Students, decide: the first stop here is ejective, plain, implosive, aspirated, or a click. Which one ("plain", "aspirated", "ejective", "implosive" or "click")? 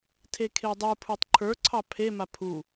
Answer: aspirated